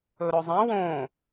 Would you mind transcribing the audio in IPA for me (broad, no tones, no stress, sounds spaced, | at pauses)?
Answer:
ɵ ɾ ɵ zˤ ĩ w õ